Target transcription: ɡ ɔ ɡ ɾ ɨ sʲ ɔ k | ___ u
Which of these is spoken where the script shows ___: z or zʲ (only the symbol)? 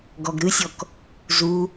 z